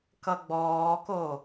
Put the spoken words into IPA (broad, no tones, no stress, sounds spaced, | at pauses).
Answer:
k ʌ ɡ͡b ɔː k o